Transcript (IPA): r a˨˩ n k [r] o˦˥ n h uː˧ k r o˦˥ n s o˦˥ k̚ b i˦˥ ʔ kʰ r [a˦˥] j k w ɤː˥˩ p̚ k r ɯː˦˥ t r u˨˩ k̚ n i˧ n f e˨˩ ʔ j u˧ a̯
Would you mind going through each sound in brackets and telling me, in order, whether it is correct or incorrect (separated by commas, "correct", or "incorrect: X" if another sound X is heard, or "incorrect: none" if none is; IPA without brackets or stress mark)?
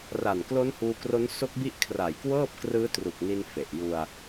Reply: incorrect: l, incorrect: a˨˩